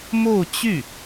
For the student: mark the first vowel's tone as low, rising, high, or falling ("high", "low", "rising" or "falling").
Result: falling